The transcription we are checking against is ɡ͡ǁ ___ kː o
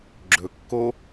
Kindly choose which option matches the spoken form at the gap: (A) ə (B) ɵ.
B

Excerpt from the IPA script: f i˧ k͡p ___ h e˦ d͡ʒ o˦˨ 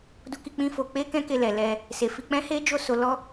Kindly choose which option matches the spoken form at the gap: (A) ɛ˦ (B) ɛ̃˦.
B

